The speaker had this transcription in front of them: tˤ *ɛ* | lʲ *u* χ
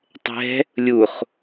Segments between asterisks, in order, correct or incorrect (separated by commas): incorrect, correct